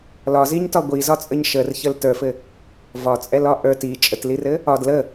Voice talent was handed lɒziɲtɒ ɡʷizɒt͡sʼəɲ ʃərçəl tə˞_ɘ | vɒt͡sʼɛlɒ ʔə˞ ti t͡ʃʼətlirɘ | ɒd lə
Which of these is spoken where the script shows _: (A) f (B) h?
A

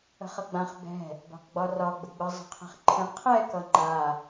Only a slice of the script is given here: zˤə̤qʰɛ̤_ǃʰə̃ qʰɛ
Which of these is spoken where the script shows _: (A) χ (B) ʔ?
A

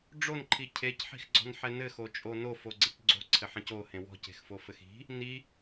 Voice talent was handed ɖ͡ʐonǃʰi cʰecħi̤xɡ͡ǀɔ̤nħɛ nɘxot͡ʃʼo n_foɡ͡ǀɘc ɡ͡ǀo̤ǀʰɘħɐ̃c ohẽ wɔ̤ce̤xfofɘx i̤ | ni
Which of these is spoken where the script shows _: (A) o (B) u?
A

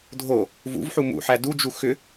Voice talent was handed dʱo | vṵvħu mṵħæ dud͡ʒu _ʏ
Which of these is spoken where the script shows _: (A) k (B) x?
B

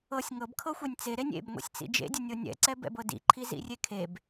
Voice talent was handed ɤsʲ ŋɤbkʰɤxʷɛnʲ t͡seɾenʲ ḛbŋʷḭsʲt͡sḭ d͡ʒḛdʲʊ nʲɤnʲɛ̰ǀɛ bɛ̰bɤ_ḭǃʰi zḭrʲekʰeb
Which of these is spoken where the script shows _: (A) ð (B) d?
B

